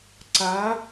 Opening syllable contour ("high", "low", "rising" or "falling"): rising